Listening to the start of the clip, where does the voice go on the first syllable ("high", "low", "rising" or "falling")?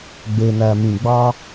low